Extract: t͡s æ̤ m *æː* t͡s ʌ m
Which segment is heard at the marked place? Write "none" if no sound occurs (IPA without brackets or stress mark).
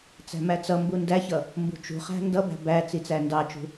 æ